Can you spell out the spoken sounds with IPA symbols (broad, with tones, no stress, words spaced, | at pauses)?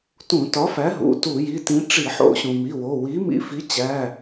tũ˧˩˧tɒ˨˥fæ˨˥ ɦṵ˩˧˩tu˧˩˧ji˩˧˩tĩ˨˥ ʈ͡ʂi˧˩˧ħo̰˧˩˧ɕũ˩mi˩˧˩ wo˩˧˩ wi˨˥mḭ˧fi˨˥t͡ɕæ˩˧˩